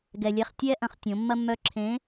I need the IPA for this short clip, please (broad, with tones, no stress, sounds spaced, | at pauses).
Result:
ɡ ɛ˩ lʲ ɛ˩˧˩ χ tʲ ɛ˧ ʔ ɐ̃˩˧ χ tʲ õ˩˧ mː ɐ˧ mː œ˧˩ ǁʰ ẽ˨˥